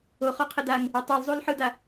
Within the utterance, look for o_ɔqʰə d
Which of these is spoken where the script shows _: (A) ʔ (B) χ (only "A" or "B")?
B